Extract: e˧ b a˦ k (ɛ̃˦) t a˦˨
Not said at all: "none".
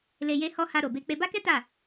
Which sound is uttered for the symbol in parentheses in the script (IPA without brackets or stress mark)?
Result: ɛ˦